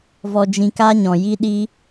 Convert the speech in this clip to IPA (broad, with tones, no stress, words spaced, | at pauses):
vɔ˧d͡ʒĩ˧ka˦ ɲɔ̃˨ji˦ɗi˦